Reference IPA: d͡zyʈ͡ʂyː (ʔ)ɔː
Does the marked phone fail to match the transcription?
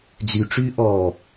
no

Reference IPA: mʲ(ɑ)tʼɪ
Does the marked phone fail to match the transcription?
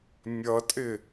yes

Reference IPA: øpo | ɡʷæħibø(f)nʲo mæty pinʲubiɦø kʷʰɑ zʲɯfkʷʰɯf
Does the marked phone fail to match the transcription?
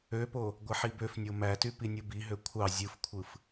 no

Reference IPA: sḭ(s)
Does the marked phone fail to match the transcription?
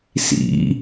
yes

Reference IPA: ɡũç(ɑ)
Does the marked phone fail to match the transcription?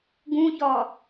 yes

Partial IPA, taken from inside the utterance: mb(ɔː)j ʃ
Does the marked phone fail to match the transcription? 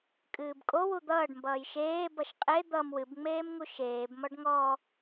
yes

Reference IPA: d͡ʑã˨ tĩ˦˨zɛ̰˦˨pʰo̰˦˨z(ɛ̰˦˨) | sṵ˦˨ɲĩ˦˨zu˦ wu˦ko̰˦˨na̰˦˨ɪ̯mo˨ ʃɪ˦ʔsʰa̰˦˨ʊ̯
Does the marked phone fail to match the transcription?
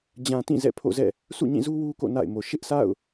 no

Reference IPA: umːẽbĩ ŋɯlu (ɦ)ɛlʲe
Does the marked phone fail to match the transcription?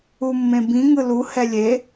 yes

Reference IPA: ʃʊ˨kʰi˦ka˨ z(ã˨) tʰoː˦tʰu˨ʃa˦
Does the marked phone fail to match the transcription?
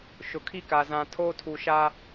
no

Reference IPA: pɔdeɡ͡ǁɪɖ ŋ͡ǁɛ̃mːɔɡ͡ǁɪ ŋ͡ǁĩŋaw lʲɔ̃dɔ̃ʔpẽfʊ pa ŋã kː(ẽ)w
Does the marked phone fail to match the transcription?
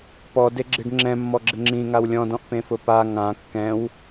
yes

